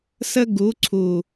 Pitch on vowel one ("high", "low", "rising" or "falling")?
high